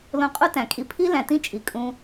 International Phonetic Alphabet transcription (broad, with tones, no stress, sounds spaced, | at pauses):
l õ˧ qʼ u˦ t æ̃˨ kʼ i˧ pʰ i˦ l æ̃˨ t ĩ˦ t͡ʃʼ i˨ kʼ ũ˧